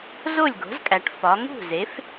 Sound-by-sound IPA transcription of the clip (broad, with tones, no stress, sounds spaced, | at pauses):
z o˥˩ lʲ ɡ o̤˩˥ z kʼ æ˩˧ ʈ f ɒ˩˧ ŋ ṳ˥˩ z e˩˥ f